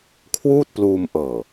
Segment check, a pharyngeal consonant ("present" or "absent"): absent